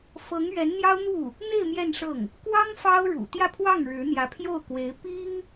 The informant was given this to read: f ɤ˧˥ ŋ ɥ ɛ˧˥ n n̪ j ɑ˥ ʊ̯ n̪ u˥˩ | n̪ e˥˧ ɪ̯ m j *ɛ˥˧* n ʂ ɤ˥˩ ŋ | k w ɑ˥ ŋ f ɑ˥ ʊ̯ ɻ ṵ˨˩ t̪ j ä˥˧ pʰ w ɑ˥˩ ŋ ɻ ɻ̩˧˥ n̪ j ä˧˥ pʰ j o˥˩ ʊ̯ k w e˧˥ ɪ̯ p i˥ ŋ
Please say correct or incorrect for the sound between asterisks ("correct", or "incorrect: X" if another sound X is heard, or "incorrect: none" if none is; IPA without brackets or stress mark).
correct